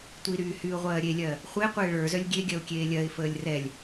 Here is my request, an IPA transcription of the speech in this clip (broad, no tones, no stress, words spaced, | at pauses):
tʷiɾyː hyːʊ̯ʁʷɜːɾʲelʲɜ | χʷe qʷeːɭə˞zœlʲ ɡʲeɡʲɜʊ̯ kʲeːlʲɜɪ̯fəːlʲ rɛlʲ